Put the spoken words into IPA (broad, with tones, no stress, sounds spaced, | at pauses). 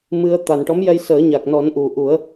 m ɨ˧ ə̯ t̪ a˨˩ n ʈ ɔ˧˥ m j ɛ˧ j s əː˨˩˦ ɲ a˨˩ k̚ n ɔ˨˩˦ n ʔ u˨˩˨ ʔ u˨˩˦ ə̯